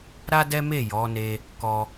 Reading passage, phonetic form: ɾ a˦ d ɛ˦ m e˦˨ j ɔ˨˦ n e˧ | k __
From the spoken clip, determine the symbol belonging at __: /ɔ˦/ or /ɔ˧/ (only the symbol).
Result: ɔ˧